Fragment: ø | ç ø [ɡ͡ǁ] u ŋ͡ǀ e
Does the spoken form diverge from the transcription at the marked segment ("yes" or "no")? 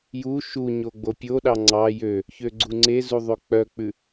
yes